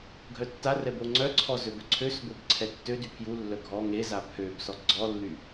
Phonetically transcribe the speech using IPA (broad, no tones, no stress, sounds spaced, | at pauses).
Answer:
ɡʱ œ tː a r ɛ b o ŋ͡ǀ œ ǀʰ ɔ z ø b œ ǀʰ ø s b o b ǀʰ ɛ tː ø d y pʰ j u lː œ ɡʱ ɔ ŋ e z a pʰ ø b s ɔ ɡ͡ǀ ɔ lː y